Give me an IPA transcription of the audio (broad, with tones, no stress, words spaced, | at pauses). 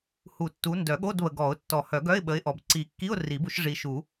hu˨˩˦tːu˨˦ ndœ˨˩˦ɠo˧˥˧dβə˨ɡɔ˨˩˦ʊ̯ tːɔ˨˩˦hœ˨˩˦ɡœ˧˥˧ɪ̯ ɓə˨˦ɪ̯ʔɔ˨b ǀi˨˩˦kːi˧˥˧ʊ̯ ri˨˩˦bu˨˦ʃ ʐi˨ ʃu˨˩˦